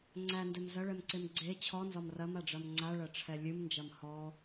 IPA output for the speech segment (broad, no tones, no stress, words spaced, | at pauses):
ŋ͡ǀændɛm zɐɭɛmǀem ɡ͡ǀe t͡ɕʰɔnzɒm rɐmaɖ͡ʐɐm ŋ͡ǀaɭɐʈ͡ʂʰɛ lʲɨmnd͡ʒɐm hɔ